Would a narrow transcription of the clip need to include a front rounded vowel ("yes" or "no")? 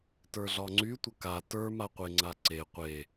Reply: yes